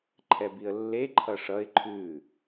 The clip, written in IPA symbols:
ǃʰ ɛ b i ə̯ lː e ǃʰ ʌ ʂ ʌ ɪ̯ ǃʰ ʉ

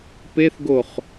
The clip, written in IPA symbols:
p e θ ɡ o χ

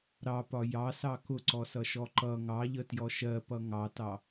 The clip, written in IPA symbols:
ɾ ɑ p ɒ j ɑ s ɑ k ʊ ǀ ɔ s ʌ ʃ ɔ ǃ ʌ ŋ ɑ ʎ ə t j ɔ ʃ ɜ p ʌ ŋ ɑ t ɑ

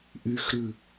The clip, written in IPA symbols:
ʔ y x ɾ ʉ

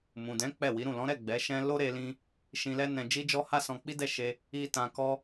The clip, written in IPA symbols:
m ũ˨ d ɛ̃˨˦ k͡p ɛ˦˨ w i˨˦ ɾ ũ˦˨ l ɔ̃˨˦ ɾ ɛ˦˨ ɡ͡b ɛ˨˦ ʃ ɛ̃˦ l o˦ ɾ e˧ l ĩ˧ | ʃ ĩ˧ l ɛ˦ n ɛ̃˧ d͡ʒ i˦ d͡ʒ ɔ˦ h a˦ s ɔ̃˧ k͡p i˦ d ɛ˦˨ ʃ e˧ | i˧ t ã˧ k ɔ˦

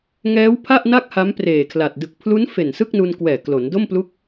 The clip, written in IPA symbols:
ŋ ɛː˦˥ w pʰ a˥˩ ʔ n a˥˩ k̚ h a˦˥ m p r eː˨˩ kʰ l a˨˩ t̚ d ɯ˨˩ k̚ pʰ l u˦˥ n f e˨˩ n s ɯ˥˩ k̚ n u˧ n k w ɛː˨˩ k l o˩˦ n d o˥˩ m p l u˦˥ k̚

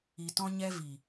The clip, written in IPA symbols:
i˨ t ɔ̃˧ ɲ ɛ˧ v i˨

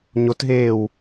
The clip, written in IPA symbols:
ɲ o t ɦ eː w

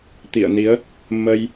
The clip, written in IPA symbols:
t̪ ḭ˧˨ ə̯ n i˨˦ ə̯ | m ə˧ j

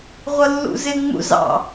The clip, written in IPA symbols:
ʁʷ ʌ lː ṵ z ɪ ŋ͡m ṵ z ɑ̰

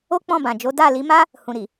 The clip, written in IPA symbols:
o˦ k͡p ɔ̃˦˨ b ã˨ d͡ʒ o˨˦ d a˦˨ l i˨˦ m a˦ | h ũ˨ ɾ i˨

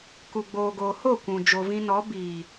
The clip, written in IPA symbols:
k u˨ ɡ͡b oː˨ ɡ oː˨ h o˦˨ kʷ ũ˨ d͡ʒ o˨ v ĩ˧ n ɔ˨˦ b iː˨

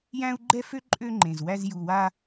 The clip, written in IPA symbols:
j æ̃˦ u̯ ɡ͡ǃ ɛ˦ f ø˦ ǃʼ ø˦ ŋ͡ǃ ẽ˨ z w æ˧ z j u˨ w a˧

